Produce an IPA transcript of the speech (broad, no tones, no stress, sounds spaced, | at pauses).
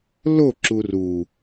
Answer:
l o ǁ u r u